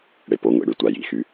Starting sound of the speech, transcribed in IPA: ɽ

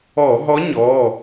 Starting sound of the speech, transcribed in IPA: ɔ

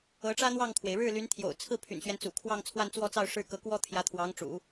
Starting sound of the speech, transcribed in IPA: ɤ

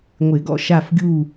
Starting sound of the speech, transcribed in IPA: ŋʷ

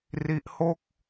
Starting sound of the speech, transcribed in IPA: r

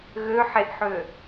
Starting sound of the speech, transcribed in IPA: ɣ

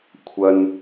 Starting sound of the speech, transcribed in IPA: kʷʰ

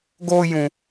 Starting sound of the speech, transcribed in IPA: ɡ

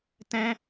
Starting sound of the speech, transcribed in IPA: t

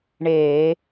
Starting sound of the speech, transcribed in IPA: ɳ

